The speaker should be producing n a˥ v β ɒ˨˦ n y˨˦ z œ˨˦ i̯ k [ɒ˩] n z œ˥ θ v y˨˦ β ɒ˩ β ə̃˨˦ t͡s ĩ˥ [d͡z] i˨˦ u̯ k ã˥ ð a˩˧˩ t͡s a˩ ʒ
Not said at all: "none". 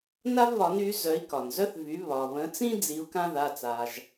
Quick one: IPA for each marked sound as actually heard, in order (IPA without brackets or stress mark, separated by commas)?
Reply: ɒ˩, d͡z